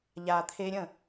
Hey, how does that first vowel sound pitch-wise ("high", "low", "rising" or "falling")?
low